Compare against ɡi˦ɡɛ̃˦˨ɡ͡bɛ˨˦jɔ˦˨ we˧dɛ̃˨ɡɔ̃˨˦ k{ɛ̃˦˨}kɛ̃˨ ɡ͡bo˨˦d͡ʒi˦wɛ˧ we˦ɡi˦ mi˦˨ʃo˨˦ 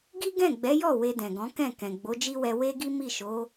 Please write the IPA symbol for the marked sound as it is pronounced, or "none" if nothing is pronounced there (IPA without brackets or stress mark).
ɛ̃˦˨